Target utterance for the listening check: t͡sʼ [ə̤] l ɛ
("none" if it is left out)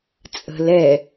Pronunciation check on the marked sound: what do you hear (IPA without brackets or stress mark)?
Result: ə̤